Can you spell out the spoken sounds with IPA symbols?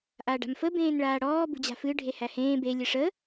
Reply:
ʔ a ɖ a̤ m f ə b ẽː n ɭ aː ɽ ɔː b ṳ d͡ʑ a̤ f ɨ ɖʱ e h æ h ẽː b e lʲ ɨ ʂ ə

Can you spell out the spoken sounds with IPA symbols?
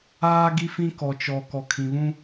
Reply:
aː˦ ɡ i˦ f ĩ˦ k ɔ˨ t͡ʃ ɔ˨ k ɔ˨ kʰ ĩ˨ β ũ˦

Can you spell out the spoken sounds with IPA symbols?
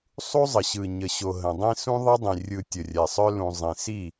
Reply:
sˤ u˦ zˤ ə˨ ɕ ɯ˨ ɲ ə˨ ɕ o˨ ɦ ə̃˨ dˤ ĩ˦ s ũ˦ ðˤ ə˦ dˤ ĩ˨ rʲ ɯ˨ tʲ ə˨ rʲ ɛ˨ sˤ œ˦ l ũ˨ zˤ ĩ˨ s i˦˨

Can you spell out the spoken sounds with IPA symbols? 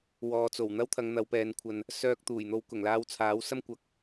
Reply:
w ɔː˨ t͡s o˨˩ w n̪ ɐ˥ w t̪ʰ ɐ˨˧ ŋ n̪ ɐ˨˧ w p ɛː˨˧ n kʷʰ ɐ˧ n | s œː˧ k̚ t̪ uː˨˩ j n̪ o˧ w k ʊ˨˩ ŋ l aː˧ w t͡sʰ aː˨˥ w s ɐ˥ m kʷ ɐ˧ k̚

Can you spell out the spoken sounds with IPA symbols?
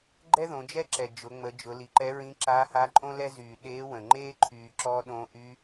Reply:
ɡ͡ǃ ɛ˥ ð õ˩˧ d͡ʒ ɛ˥ ǁ ɛ˩ d͡ʒ ʊ˩˧ ŋ͡m ə˩˧ d͡ʒ ʊ˩˧ l i˩˧ ǃ ɛ˧˥ ɹ ĩ˧˥ ǁ aː˧˥ h aː˧˥ ǃʼ õ˥ l ɛ˥ z yː˩ ɗ eː˧˥ w ə̃˩ ŋ͡ǃ eː˥ ǃʰ yː˩ ǁ ɔ˧ ɗ õː˧ ʔ y˧˥

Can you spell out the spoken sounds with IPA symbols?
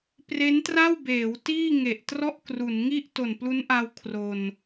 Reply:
p r e˦˥ n t r a˥˩ w b eː˩˦ w t iː˥˩ ŋ e˨˩ ʔ t r ɔ˥˩ ʔ k r u˩˦ n ŋ i˥˩ ʔ t o˨˩ n p l u˦˥ n ʔ a˧ w kʰ r o˧ n

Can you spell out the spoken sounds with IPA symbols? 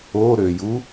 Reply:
o ɾ ø j u

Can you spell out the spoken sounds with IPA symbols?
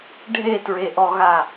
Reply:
ɖʱ e t ɹ e ʔ ɔ ɣ a

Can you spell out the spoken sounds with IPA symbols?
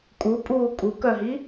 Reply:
kʼ u pʼ uː kʼ u k œ ɦ i

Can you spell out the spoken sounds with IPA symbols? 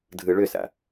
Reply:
dʱ ɯ ɭ ʏ s a̰

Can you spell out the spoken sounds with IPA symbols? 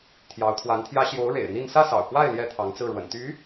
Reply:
t̪ʰ j ɑ˧˥ ʊ̯ t̪ʰ w a˧˥ n t̪ʰ j ä˥ ɕ j o˧˥ ʊ̯ ɻ ḛ˨˩ ɪ̯ n̪ i˥˧ n s ä˥˩ s ɑ̰˨˩ ʊ̯ k w a˥˩ ɪ̯ l j ɛ˥ t̪ʰ ɑ˧˥ ŋ t͡s ɹ̩˥˩ ɻ w ə̰˨˩ n t̪ y˧˥

